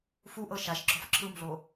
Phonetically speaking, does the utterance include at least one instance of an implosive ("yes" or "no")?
no